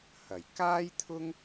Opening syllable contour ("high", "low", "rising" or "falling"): low